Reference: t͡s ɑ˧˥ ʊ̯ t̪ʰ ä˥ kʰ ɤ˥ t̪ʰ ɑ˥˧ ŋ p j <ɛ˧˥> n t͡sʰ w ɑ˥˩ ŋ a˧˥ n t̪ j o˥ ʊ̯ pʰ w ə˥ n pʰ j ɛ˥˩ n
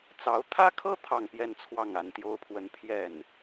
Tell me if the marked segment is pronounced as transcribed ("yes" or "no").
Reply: no